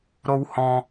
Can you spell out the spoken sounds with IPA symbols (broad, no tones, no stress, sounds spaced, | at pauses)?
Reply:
ɾ o w h ɔ̃